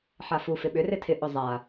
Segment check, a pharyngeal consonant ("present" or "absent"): present